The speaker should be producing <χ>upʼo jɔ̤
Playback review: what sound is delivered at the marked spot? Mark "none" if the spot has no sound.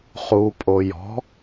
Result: χ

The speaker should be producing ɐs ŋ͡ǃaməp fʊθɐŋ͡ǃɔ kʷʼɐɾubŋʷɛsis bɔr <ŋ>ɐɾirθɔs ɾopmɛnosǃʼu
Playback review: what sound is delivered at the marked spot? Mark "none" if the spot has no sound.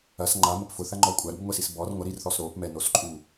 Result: ŋʷ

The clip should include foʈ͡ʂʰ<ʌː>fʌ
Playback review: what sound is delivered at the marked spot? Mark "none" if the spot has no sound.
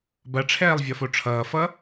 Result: ʌː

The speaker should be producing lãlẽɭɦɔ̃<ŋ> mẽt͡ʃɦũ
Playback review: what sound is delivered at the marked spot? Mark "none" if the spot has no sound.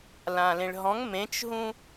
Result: ŋ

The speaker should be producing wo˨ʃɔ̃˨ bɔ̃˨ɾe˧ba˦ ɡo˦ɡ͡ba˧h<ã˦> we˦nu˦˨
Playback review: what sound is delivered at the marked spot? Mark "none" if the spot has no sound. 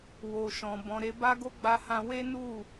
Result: ã˧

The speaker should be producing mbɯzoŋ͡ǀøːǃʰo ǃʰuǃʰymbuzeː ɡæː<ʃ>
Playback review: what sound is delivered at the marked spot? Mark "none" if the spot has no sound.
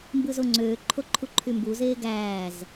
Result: z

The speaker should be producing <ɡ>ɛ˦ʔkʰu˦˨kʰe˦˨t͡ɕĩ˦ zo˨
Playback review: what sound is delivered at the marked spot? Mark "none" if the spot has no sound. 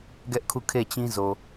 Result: ɡ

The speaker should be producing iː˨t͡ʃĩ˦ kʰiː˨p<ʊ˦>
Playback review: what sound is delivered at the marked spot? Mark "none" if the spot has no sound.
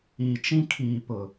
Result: ʊ˨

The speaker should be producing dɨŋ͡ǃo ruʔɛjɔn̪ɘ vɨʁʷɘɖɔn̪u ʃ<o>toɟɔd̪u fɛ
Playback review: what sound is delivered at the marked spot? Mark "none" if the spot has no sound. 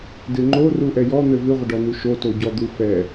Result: o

